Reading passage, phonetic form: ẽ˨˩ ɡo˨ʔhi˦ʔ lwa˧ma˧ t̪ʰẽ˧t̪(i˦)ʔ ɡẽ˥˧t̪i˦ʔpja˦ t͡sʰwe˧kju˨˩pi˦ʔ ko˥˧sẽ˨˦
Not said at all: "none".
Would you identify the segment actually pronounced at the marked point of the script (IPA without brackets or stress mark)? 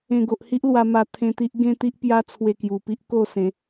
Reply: i˦